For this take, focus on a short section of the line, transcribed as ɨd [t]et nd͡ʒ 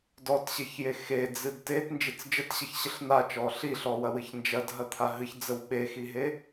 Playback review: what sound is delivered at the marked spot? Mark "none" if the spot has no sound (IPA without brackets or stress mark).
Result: t